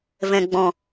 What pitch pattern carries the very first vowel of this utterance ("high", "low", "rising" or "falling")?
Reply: low